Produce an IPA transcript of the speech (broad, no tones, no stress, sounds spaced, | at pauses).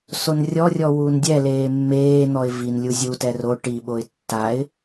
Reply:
s o n rʲ ɔ rʲ ɔ w uː n dʲ ɛ l eː mː eː n̪ ɔ ɪ̯ v i n lʲ u zʲ u t ɛ r o ʈ i ɓ o ɪ̯ tː a ɪ̯